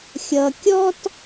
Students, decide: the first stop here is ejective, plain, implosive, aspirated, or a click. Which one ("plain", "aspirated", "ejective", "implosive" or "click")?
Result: plain